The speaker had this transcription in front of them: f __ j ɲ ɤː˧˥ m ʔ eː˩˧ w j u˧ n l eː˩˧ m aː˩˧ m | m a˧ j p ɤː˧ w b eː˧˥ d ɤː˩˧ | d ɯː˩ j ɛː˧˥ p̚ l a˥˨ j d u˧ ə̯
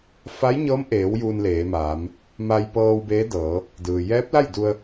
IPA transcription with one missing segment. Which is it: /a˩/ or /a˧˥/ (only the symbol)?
a˧˥